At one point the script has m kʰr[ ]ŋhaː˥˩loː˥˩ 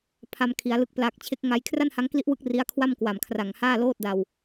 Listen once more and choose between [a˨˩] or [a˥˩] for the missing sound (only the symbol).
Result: a˨˩